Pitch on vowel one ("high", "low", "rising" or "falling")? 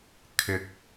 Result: rising